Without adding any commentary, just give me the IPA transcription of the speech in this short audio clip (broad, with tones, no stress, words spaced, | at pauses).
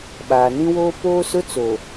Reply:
ɓaː˨nĩ˦woː˦ poː˦sʊ˦ t͡so˨